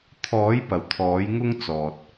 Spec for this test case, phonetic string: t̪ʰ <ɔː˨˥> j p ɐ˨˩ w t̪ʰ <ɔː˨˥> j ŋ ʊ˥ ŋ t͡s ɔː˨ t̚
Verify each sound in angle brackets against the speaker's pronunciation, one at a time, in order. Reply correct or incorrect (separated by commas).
correct, correct